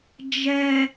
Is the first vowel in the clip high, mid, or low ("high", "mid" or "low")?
mid